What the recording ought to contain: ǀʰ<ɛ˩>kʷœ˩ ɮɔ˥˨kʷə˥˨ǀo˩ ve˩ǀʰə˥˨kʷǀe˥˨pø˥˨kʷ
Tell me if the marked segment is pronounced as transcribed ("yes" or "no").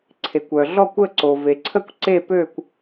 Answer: no